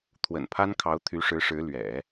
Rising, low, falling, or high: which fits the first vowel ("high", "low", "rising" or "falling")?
low